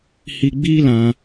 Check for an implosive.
absent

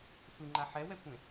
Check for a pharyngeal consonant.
present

